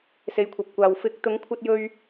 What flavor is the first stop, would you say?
aspirated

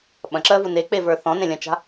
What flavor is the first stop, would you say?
implosive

